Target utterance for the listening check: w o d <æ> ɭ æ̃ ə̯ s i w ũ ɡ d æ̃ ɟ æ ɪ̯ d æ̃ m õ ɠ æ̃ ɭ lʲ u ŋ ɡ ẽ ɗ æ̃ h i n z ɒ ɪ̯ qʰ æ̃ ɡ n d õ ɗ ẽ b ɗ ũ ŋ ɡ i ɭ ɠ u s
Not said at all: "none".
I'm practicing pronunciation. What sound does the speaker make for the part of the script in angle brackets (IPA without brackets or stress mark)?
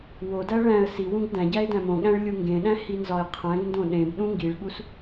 æ